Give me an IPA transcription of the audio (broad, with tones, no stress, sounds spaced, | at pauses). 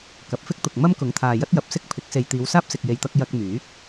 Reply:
k ɐ˨˥ p̚ f ɪ˥ k̚ t̪ ʊ˨ k̚ m ɐ˥ m k ʊ˨˥ ŋ t̪ʰ aː˨ j ɐ˥ t̚ j ɐ˨˥ p̚ s ɪ˥ k̚ pʰ ɪ˨˥ k̚ s e˨ j t̪ iː˨˧ w s aː˥ p̚ s ɪ˨ k̚ j e˨ j t̪ ɐ˧ k̚ j ɐ˧ k̚ m yː˨˥ k̚